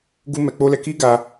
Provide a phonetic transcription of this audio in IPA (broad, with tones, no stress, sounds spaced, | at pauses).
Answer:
ɡ u˦ m ɛ˧ k͡p o˦ l ɛ˧ k i˦ ɡ a˧